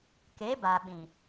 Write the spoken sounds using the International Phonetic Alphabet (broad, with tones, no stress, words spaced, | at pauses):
ke˨˦ba˨ɓĩ˨